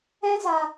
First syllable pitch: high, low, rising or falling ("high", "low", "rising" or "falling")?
high